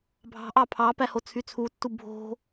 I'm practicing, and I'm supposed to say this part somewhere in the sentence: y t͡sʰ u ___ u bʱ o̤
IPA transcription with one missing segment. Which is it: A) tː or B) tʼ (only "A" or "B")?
A